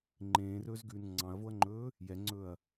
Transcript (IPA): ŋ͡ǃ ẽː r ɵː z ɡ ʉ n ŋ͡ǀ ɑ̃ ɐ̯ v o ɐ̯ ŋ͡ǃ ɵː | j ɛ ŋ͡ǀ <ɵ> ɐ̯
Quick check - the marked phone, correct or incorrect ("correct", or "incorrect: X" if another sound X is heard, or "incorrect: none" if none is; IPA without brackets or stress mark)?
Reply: correct